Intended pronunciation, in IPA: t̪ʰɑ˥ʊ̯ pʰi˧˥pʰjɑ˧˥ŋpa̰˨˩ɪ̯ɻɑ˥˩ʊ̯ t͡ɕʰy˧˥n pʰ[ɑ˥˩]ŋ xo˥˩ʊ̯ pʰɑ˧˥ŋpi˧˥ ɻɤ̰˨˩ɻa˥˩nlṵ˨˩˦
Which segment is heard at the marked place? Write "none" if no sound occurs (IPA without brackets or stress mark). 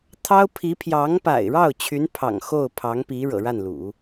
ɑ̰˨˩